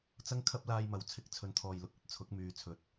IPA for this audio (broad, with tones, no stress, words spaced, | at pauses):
t͡sɐ˥ŋkʰɐ˥p̚laː˧j mɐ˨˧wt͡sʰɪ˧k̚ t͡sʰɵ˨˧nt̪ʰɔː˨jlʊ˨k̚ ɵ˨˥t̚t͡sʰʊ˨˥k̚ myː˨˧t͡sʰɵ˨t̚